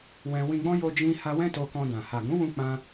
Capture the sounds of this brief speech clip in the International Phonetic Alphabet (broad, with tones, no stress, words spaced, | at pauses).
wɛ̃˧ wĩ˧ɡ͡bɔ̃˦ jo˦d͡ʒĩ˦ ha˦ wɛ̃˦to˧kɔ̃˧dã˨ ha˨ɡũ˨˦wũ˧ k͡pã˦